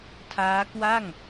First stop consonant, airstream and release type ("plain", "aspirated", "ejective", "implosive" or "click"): aspirated